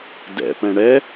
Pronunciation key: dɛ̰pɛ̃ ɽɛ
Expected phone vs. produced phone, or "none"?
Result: none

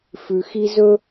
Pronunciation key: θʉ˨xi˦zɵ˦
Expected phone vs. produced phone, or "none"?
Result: θ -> f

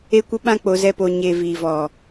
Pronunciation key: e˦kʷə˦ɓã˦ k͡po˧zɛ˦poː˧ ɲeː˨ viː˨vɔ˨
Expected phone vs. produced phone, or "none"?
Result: none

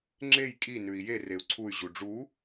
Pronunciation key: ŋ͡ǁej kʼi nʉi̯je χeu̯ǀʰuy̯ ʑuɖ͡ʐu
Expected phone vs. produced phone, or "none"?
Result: χ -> r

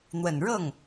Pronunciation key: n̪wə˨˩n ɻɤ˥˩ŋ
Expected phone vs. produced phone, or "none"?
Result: none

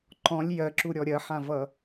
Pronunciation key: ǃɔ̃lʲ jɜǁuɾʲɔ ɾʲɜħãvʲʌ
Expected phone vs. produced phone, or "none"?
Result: vʲ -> v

